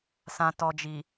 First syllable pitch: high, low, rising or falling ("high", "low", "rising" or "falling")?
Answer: low